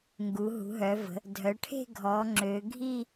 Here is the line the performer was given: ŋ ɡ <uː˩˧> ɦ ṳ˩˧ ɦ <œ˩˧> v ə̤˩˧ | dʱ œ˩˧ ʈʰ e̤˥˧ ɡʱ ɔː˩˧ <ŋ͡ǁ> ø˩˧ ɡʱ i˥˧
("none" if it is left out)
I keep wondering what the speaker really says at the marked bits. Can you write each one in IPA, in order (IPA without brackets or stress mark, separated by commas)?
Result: u˩˧, œ˩˧, ŋ͡ǁ